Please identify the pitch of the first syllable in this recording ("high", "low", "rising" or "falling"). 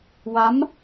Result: rising